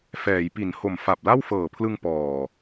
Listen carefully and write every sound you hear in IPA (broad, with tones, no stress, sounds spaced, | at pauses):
f ɛː˩˦ j p i˩˦ n h o˨˩ m f a˨˩ p̚ l a˥˩ w f ɤː˨˩ pʰ l ɯ˧ ŋ p ɔː˨˩